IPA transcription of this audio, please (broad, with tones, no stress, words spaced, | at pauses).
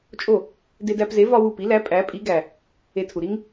t͡ʃʼo˥˩ | de˧dæ˧pze˩˥ vɒ˥wu˥˩ pi˩˥læ˩˥ pʼæ˩˥pʼi˩˥ ɡæ˩ | e˧tʰu˩ ɾi˥ŋ